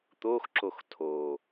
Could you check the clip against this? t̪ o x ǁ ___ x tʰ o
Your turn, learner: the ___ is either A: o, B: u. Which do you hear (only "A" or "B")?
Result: A